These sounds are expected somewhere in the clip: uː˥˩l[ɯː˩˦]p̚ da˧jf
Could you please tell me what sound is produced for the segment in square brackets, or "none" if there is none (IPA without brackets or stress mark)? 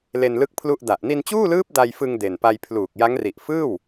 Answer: ɯː˦˥